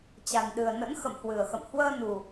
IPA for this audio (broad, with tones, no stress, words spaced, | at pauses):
t͡ɕa˨˩nɗɨ˨˩ə̯nə̰˧˥n xə̰˧˨mhwɨ˨˩ə̯xə̰˧˨m hwəː˧nu˨˩